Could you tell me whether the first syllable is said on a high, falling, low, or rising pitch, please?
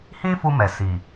high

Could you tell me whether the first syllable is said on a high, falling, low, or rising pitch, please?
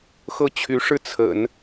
falling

